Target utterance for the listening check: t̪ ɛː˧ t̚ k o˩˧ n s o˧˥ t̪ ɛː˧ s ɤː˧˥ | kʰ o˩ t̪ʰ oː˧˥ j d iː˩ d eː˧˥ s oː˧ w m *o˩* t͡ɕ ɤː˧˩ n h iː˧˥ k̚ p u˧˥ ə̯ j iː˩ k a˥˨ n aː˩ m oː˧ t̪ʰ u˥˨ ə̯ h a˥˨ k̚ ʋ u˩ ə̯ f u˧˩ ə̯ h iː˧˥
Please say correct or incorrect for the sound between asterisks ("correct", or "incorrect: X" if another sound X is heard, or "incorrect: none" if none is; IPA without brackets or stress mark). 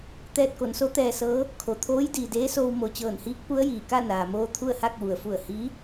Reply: correct